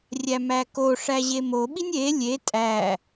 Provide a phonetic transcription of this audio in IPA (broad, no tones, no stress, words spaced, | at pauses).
rʲæmækoʂæ ʑemoɓinʲ e lʲe tʼæ